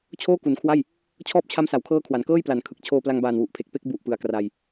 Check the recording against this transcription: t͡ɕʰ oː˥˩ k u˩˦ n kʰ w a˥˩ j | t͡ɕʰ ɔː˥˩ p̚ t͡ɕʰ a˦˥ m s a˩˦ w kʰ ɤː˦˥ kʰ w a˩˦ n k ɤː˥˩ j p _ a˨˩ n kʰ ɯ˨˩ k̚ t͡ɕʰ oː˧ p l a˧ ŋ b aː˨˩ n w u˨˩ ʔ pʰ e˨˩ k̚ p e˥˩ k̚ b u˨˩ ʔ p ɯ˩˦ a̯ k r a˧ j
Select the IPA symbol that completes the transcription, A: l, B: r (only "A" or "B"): A